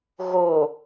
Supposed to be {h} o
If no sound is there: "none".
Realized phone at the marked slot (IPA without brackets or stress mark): ɣ